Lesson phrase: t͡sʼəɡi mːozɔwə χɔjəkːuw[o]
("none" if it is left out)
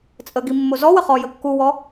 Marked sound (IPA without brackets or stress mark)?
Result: ɔ